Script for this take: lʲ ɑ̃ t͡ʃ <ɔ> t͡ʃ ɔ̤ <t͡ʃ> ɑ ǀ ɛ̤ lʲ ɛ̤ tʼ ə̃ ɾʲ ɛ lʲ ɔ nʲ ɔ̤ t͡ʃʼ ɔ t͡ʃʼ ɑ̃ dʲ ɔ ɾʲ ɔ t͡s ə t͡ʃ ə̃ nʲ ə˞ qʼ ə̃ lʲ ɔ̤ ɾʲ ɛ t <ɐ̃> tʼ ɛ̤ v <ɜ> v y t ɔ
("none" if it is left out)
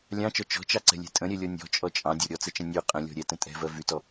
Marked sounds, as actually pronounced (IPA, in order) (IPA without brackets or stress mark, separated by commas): ɔ, t͡ʃ, ə̃, ɜ